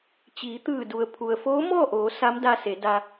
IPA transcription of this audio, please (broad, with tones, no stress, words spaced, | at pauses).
t͡ɕiː˩˧t̪ɯː˧˩ du˩ə̯pʰu˩ə̯ foː˧˥ mɔː˥˨ʔoː˩˧ sa˧˥mda˧ se˩˧da˧